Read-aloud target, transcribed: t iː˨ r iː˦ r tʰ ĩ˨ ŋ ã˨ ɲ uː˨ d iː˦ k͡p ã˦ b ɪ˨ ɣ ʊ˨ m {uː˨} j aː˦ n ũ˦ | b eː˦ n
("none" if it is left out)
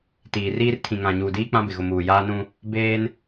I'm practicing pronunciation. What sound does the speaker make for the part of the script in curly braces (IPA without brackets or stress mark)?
uː˨